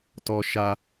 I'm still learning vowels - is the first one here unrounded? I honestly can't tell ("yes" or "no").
no